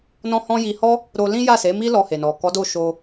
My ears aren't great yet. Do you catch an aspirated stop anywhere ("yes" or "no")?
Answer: no